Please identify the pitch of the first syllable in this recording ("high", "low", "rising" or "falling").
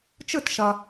falling